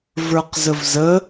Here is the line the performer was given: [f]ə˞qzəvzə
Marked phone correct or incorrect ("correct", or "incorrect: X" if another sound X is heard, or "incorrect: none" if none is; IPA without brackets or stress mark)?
incorrect: v